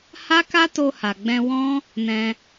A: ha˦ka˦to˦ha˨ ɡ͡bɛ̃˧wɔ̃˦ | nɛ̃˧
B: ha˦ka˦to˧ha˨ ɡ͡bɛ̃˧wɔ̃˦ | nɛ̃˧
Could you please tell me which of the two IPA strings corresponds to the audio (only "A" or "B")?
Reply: B